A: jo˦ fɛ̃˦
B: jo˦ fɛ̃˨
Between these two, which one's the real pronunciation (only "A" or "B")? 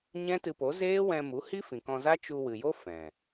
B